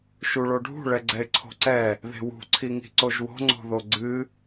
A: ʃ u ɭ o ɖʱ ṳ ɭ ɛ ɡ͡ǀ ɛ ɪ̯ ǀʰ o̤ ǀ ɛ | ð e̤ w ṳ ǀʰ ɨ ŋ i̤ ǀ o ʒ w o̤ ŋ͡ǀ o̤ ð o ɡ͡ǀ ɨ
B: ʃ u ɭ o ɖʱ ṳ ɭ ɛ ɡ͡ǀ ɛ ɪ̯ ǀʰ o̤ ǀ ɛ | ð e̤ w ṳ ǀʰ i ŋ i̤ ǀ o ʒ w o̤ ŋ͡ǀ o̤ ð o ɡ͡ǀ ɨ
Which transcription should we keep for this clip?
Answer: B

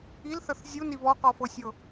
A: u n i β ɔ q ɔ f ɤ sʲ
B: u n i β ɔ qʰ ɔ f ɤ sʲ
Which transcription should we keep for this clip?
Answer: A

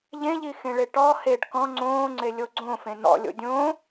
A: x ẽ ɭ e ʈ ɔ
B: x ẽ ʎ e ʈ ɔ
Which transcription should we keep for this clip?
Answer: A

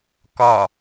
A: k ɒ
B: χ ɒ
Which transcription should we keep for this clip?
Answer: A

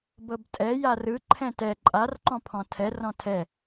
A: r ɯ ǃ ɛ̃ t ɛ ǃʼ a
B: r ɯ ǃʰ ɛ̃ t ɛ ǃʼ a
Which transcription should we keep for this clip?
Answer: B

